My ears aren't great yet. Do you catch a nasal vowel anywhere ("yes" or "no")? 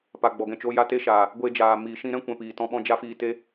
yes